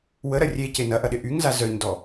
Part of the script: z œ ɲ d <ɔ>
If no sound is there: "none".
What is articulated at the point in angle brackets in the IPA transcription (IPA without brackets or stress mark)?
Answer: ɔ